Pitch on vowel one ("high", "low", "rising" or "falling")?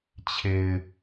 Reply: low